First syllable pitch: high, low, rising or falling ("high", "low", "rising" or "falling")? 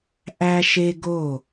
high